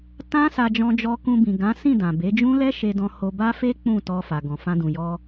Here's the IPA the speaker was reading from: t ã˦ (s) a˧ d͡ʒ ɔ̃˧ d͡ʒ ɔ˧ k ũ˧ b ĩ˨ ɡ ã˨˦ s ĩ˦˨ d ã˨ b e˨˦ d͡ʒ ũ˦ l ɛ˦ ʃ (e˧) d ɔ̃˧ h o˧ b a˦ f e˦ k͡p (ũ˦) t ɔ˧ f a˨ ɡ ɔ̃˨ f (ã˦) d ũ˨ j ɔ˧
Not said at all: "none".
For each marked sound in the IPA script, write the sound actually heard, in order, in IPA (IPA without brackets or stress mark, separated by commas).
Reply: s, e˧, ũ˦˨, ã˧